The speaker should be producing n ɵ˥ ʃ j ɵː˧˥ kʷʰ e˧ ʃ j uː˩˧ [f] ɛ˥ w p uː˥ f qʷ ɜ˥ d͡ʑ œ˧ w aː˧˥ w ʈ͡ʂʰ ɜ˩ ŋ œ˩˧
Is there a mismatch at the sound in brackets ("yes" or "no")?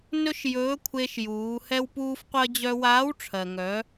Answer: yes